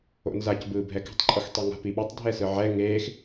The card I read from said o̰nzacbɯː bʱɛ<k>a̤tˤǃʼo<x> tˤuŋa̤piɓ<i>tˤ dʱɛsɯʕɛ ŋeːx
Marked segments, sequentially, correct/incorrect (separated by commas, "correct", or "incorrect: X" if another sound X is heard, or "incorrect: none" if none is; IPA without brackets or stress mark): correct, correct, incorrect: e